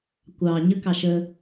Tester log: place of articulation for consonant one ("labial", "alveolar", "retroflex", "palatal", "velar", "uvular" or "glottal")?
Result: velar